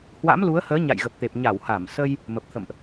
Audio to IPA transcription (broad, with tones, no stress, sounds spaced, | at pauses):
h w a̰˧˥ m l u˨˦ ə̯ h əː˨˦ ɲ a̰˧˨ j ɣ ə˨˩ p̚ t̪ e˨˩ p̚ ɲ a˧˩ w h a˧˩ m s ə˧ j | m ə˨˩ p̚ t̪ʰ ə̰˧˨ m ʔ